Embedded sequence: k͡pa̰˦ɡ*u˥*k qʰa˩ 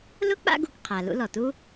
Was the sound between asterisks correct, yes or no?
no